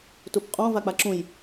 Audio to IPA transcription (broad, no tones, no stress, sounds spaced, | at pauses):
t u p qʼ ɔ̃ v a k͡p a ǁ ũ j